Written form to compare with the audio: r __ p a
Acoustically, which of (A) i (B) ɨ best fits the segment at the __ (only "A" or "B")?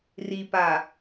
A